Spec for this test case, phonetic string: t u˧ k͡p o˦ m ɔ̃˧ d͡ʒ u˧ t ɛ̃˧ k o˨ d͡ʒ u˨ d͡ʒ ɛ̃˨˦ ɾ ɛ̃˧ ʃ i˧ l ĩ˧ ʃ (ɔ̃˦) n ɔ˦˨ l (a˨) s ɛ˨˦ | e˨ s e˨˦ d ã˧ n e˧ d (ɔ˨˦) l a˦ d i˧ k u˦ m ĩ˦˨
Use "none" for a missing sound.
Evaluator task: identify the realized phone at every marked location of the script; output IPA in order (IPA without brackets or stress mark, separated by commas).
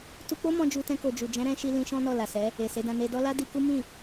ɔ̃˦, a˨, ɔ˦